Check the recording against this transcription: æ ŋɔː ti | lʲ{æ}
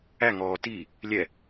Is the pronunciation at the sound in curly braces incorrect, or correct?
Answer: incorrect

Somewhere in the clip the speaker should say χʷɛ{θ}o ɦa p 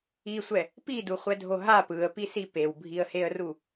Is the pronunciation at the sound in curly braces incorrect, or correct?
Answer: incorrect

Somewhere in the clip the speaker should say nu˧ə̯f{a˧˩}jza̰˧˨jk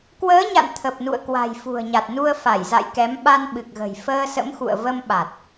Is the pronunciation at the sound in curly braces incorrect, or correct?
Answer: correct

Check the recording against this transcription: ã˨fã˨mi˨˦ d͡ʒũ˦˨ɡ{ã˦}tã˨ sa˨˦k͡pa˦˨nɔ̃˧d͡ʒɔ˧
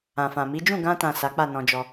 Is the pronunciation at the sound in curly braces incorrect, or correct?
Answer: incorrect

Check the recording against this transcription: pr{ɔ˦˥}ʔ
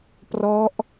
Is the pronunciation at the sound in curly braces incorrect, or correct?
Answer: correct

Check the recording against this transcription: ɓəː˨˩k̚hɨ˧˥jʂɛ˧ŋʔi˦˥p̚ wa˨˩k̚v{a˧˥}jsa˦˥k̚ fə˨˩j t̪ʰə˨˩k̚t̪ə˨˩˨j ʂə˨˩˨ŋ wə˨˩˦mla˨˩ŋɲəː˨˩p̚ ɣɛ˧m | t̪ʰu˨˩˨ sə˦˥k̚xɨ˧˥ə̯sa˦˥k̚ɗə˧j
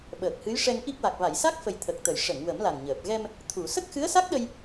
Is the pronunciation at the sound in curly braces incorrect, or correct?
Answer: incorrect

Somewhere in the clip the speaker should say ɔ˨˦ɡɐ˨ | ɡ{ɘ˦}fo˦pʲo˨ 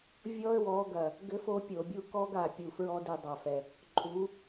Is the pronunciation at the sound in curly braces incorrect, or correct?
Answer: correct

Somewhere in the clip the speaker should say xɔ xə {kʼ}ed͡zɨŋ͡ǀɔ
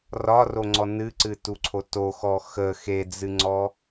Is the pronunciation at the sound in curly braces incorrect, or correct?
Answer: incorrect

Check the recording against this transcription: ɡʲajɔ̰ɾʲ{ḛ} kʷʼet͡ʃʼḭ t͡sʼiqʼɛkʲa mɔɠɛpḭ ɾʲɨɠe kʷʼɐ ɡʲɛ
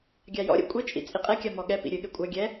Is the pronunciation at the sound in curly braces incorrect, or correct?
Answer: correct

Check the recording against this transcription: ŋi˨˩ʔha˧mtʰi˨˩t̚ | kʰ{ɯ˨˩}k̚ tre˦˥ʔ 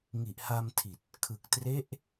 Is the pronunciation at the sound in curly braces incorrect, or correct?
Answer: correct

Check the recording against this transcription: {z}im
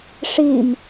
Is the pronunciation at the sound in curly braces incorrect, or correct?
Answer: incorrect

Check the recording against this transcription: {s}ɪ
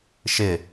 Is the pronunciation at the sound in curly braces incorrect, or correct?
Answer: incorrect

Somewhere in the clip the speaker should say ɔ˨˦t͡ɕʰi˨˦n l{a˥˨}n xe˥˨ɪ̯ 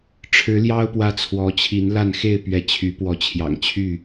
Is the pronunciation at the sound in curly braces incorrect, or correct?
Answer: correct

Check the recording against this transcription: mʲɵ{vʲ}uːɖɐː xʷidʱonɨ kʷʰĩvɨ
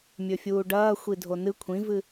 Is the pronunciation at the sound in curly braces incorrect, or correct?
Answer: incorrect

